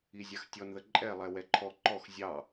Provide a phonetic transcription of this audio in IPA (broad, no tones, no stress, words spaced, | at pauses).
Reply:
izʲaxtʲɔnðə ǃʼɛlˠɛ wɛǃʰɔ ǃɔx zʲɑ